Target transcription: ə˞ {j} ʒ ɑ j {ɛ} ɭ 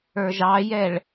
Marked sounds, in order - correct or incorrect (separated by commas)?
incorrect, correct